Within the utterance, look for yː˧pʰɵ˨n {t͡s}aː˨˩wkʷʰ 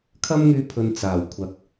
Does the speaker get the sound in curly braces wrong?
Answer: no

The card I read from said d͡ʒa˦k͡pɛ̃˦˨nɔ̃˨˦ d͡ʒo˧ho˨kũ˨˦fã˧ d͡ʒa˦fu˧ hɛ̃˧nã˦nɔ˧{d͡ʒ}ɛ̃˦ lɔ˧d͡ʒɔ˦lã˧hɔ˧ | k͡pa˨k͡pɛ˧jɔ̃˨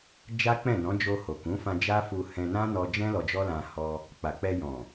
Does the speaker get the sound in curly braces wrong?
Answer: no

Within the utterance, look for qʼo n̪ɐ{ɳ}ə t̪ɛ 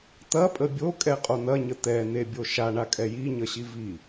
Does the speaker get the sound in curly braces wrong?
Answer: yes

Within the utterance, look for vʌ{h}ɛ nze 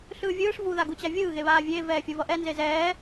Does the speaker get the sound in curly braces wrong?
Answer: yes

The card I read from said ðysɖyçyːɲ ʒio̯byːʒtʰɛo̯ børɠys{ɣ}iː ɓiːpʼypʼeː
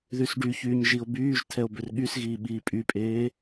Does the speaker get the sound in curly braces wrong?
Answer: no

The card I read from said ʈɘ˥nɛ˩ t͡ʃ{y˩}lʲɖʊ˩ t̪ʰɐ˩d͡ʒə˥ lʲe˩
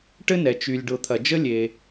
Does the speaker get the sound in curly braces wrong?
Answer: no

